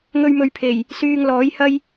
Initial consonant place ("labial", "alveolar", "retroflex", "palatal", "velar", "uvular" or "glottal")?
velar